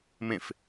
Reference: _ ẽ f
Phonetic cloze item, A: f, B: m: B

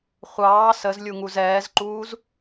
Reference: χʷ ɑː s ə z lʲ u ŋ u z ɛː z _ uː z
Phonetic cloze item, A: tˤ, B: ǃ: B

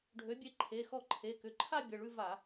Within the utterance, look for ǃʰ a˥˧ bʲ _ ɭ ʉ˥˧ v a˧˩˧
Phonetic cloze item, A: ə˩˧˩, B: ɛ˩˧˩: A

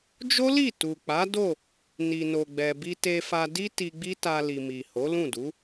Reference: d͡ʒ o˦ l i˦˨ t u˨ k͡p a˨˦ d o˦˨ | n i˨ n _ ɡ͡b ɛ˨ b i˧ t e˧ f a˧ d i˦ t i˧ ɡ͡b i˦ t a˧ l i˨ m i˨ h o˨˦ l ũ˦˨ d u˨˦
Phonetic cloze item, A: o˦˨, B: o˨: B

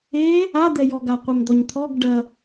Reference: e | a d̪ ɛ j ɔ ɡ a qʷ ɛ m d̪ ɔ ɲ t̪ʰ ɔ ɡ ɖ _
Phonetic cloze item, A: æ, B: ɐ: B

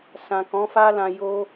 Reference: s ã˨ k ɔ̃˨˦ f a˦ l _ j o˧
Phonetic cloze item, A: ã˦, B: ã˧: B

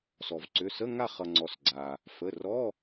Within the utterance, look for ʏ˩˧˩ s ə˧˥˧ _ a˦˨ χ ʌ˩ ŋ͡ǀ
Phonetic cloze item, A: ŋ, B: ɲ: A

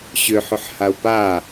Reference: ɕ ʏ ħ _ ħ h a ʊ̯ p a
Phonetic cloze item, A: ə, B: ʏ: B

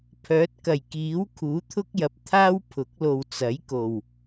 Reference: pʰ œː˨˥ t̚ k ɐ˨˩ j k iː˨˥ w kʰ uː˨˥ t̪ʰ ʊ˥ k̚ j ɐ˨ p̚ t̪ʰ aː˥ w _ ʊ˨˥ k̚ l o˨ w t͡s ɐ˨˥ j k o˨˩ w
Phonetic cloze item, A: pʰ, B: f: A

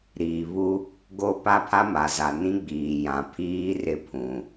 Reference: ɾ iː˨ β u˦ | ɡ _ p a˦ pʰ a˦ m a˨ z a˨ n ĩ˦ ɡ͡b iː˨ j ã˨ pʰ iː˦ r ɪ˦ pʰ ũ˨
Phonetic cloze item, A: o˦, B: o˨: A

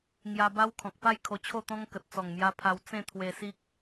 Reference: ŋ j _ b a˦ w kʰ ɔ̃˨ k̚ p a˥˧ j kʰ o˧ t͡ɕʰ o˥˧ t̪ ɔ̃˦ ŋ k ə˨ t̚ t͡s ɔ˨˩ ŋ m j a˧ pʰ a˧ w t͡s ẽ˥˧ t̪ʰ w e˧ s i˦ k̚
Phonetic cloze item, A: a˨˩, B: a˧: B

